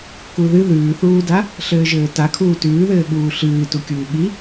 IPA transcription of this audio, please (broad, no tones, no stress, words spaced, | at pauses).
kuðɨ ðʉːθuːda | ɬɘːʒɘːtakʰuː tʉːðɘːɠuː ɬɨːtukʲuː ɠi